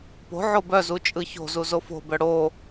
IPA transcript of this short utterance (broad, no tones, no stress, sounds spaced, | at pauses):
p o̤ ʕ o b œ z u t͡ʃʼ ɯ ç o̤ z u z o f o̤ b œ ɽ o